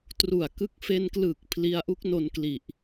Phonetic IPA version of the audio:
t r u˨˩ a̯ k ɯ˦˥ k̚ f e˧ n k l ɯː˨˩ k̚ pʰ l i˧ a̯ ʔ u˦˥ k̚ n o˧ n k l i˨˩ ʔ

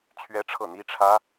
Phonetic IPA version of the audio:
t͡ɕʰ ɥ ɛ˥ ʈ͡ʂʰ ɤ˥˩ n̪ i˥ ʈ͡ʂʰ ä˥

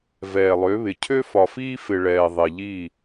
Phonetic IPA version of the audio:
v ɛː˨ lˠ ø˨˦ β ɪ˨ cʰ ø˦ f ɒ˨ f iː˦ f ɪ˨ ɭ ɛː˨ ðˤ e˨ ʎ i˦˨

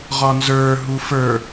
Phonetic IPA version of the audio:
ʁ ɒ n z ə˞ ɦ u f ə˞

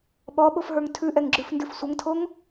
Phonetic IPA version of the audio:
ɓ ɔ ɓ o f ɦ ə˞ ŋ tʰ ʉ ʔ ɛ ŋ ɡ͡ǁ ʉ f n d ʉ f sʷ ə ŋ tʰ o ŋ

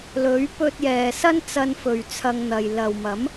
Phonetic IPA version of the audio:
l ɵ˨˥ ɥ p ɵ˧ t̚ j ɛː˨ s ɐ˥ n t͡s ɐ˧ n f ɵ˨ ɥ t͡sʰ ɐ˧ ŋ n̪ ɐ˨ j l ɐ˨ w m ɐ˨˥ m

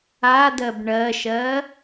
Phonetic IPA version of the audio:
a d ɜ b ɳ ɜ ʃ ɜ

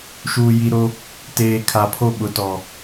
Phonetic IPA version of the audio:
ʃ uː˨ j i˨ ɾ o˦ | t eː˨ kʰ a˨ pʰ o˦ ɓ ʊ˨ t ɔ˨

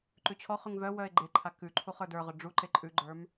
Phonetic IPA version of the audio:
ǃ ʉ t͡ɕʰ ɔ χ ʉ ŋ v œ w œ e̯ ɡ͡ǃ e ǃʰ a k ʉ ǃʰ u χ ə˞ d ə˞ ʁ œ ɖ͡ʐ u ǃ e ǃʼ ʉ ɡ͡ǃ ə˞ m

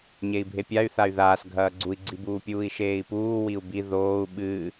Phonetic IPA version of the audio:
ɲ e i̯ bʱ e pʲ a y̯ θ a y̯ ð aː s ɡʱ ɐː ɡ͡ǀ u i̯ ɡ͡ǀ i b uː pʲ uː i̯ ʃ eː i̯ p uː w i u̯ b i ð oː u̯ ɓ ɨ

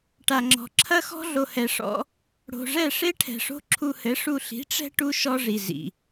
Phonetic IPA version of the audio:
ʈ a˨ ŋ͡ǁ ɔ̤˨ ǁʰ ɐ˦ x ɔ̤˦ ɮ o˧ h ɛ˧ ʂ ɔ̰˦ | ɽ o̤˨ ʐ ɛ˦˨ ʂ e˦ ʈʰ ɛ̤˨ ʂ o̤˦ ǁʰ u˧ h ɘ˨˦ ʂ u˧ ɬ i̤˨˦ ʈ͡ʂ ɛ̤˦ ʈ u˦ ʃ ɔ˦ ʐ i˨ z ḭ˨

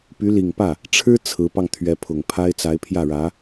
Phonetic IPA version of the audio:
p y˧˥ l i˨˩ ŋ p ä˥˩ | ʈ͡ʂʰ ɻ̩˥ t͡sʰ ɹ̩˧˥ p ɑ˧ ŋ t̪ʰ ɥ ɛ˧˥ pʰ ʊ˨˩ ŋ pʰ a˥ ɪ̯ t͡s a˧˥ ɪ̯ pʰ j ä˥˩ ɻ ä˧˥

